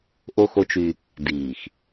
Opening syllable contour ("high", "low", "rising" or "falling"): high